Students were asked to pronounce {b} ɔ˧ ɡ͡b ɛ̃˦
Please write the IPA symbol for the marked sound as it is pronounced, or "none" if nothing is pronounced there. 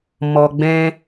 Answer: m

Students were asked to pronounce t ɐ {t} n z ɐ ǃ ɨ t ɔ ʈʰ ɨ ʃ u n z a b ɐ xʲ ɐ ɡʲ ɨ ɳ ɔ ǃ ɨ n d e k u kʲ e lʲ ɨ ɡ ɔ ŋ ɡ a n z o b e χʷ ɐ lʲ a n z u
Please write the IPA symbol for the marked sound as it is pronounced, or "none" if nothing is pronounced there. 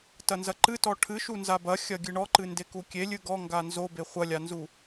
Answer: none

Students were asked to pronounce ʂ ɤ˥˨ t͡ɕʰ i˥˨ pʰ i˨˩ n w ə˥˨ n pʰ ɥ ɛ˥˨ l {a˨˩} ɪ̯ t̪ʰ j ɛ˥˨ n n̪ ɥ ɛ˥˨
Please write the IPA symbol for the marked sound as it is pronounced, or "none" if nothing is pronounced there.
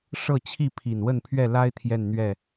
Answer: a˦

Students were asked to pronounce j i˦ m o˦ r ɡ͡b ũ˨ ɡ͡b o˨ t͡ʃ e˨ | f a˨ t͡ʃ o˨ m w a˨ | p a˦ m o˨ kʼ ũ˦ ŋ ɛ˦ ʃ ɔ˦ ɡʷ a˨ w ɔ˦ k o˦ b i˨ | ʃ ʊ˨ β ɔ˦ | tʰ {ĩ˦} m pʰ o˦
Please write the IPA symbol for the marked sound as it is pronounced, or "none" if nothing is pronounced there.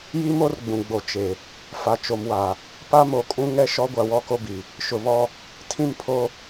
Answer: ĩ˦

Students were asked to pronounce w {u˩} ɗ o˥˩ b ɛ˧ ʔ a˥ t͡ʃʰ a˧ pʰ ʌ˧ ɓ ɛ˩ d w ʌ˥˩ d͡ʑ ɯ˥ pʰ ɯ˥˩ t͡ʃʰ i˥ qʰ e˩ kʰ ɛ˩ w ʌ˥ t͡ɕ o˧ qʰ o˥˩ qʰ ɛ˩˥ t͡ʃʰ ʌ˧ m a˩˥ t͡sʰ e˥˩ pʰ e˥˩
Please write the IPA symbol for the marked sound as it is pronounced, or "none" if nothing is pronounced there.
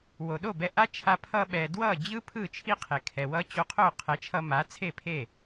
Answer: o˩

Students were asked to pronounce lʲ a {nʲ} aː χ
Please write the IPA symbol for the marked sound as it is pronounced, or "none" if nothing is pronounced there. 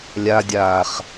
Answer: dʲ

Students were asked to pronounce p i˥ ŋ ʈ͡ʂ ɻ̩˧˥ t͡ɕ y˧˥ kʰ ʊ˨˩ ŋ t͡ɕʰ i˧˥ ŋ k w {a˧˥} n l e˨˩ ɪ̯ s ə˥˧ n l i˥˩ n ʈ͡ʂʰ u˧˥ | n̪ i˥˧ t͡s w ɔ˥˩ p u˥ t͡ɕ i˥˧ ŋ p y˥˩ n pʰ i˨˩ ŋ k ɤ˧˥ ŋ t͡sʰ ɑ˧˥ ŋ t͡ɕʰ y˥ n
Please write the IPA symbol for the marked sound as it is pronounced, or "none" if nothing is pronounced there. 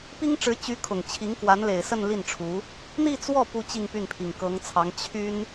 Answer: a˧˥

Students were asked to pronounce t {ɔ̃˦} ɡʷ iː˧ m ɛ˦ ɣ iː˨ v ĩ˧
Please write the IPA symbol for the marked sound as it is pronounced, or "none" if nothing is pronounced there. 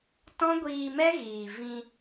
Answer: ɔ̃˦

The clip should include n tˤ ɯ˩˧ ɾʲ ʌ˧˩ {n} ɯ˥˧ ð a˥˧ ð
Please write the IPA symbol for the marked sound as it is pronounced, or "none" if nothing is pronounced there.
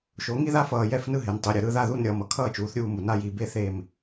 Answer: ɾ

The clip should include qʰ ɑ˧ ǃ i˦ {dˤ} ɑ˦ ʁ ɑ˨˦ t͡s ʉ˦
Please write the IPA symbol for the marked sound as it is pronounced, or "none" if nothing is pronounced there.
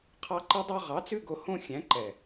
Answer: dˤ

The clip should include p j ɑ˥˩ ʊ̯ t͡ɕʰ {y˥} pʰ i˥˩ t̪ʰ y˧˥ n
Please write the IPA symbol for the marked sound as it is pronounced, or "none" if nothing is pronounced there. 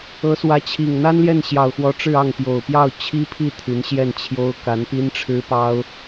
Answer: i˥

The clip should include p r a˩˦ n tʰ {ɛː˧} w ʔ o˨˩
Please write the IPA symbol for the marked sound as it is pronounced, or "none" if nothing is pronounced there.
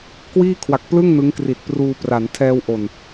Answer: ɛː˧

